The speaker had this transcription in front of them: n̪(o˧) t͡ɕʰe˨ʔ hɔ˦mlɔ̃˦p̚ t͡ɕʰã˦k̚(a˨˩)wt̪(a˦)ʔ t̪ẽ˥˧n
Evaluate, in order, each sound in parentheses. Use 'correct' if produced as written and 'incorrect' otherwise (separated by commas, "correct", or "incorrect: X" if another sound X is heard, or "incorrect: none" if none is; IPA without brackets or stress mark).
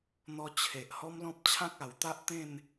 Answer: incorrect: ɔ˧, correct, correct